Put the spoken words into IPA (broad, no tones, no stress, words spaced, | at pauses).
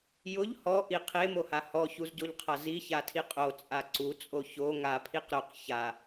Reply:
jʊʎ hɔʔi qʰemoha hɔçuzɟoʎqʰa ziçatʰi qʼot͡sʼa ǀut͡sʼo ço ŋapʰiq ɾʊq ça